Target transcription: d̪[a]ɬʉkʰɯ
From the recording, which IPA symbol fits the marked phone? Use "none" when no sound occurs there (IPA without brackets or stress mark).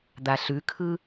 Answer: a